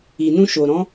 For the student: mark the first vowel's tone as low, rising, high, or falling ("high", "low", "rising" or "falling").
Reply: low